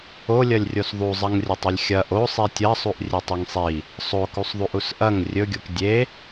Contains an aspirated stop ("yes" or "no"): no